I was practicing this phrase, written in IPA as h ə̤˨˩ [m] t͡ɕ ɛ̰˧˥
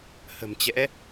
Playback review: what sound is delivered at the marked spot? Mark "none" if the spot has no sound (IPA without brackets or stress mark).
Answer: m